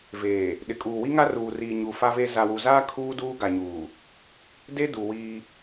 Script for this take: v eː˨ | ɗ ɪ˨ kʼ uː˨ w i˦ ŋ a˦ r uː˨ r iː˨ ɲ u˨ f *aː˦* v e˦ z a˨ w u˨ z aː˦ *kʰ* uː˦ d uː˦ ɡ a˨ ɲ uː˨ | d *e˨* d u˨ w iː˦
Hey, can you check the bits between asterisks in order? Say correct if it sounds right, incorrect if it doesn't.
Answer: incorrect: a˦, correct, incorrect: e˦

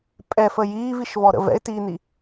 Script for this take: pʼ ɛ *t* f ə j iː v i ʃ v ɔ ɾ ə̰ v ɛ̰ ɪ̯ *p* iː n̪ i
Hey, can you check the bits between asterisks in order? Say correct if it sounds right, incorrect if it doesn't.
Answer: incorrect: none, incorrect: t

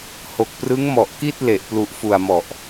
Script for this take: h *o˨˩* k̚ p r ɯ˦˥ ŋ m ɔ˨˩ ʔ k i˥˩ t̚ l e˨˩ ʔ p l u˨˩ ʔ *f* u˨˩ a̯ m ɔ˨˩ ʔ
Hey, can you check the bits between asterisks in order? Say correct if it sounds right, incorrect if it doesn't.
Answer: correct, correct

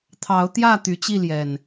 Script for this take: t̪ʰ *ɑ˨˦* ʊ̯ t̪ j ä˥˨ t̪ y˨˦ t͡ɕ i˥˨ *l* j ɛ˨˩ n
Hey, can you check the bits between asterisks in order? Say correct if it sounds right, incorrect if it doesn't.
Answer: correct, correct

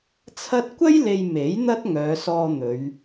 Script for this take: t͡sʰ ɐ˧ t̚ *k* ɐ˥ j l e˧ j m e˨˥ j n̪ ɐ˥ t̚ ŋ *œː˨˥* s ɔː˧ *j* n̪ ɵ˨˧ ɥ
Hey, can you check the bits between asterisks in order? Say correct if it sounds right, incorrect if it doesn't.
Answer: incorrect: kʷ, incorrect: œː˨˧, incorrect: none

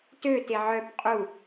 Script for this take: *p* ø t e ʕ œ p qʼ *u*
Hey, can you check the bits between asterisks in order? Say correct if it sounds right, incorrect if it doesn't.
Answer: incorrect: t, correct

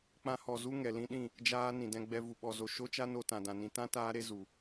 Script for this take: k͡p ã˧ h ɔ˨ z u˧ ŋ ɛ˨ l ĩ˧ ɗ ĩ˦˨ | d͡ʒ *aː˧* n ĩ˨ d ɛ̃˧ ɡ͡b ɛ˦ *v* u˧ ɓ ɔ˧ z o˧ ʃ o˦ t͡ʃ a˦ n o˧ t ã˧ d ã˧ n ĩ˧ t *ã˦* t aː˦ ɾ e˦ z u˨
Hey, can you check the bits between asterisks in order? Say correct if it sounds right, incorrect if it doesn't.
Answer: correct, correct, correct

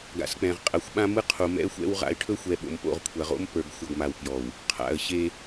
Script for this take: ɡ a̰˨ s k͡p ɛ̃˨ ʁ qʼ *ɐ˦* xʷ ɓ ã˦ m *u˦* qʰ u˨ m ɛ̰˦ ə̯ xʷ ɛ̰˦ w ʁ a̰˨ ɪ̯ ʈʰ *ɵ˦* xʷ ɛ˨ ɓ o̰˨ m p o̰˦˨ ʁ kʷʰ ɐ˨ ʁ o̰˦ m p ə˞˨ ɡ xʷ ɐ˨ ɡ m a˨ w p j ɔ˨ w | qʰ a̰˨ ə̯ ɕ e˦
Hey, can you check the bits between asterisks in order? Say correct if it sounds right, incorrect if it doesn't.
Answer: incorrect: ɐ˨, incorrect: ɯ˦, correct

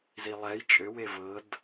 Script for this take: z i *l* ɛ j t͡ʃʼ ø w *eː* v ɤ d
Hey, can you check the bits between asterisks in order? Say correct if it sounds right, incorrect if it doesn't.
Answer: incorrect: lˠ, incorrect: e

